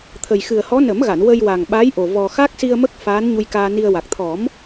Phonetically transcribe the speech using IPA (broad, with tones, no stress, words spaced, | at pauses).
t̪ʰə˨˩jxɨ˨˩ə̯hɔ˧˥ nə˨˩˦mɣa˨˩˨n wə˧jwa˨˩ŋɓa˧˥jʔo˨˩ vɔ˨˩xa˦˥k̚si˧ə̯mə˦˥k̚ faː˧˥nɲu˧jkaː˧ni˧ə̯ wa˨˩k̚ t̪ʰɔ˨˩˦m